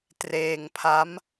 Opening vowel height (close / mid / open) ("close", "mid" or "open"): mid